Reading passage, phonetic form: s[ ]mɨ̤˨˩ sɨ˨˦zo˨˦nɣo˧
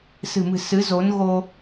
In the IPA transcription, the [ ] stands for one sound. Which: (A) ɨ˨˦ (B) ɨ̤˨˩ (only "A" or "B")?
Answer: B